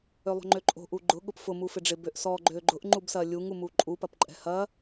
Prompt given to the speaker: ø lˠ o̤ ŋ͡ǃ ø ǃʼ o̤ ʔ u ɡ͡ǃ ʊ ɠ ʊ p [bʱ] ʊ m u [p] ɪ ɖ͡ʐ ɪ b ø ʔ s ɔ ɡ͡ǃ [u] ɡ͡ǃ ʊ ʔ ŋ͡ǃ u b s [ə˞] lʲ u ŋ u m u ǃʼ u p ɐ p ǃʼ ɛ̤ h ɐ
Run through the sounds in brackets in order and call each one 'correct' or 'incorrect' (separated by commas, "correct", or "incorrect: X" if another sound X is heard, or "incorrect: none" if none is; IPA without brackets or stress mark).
incorrect: f, incorrect: f, incorrect: ø, incorrect: ɐ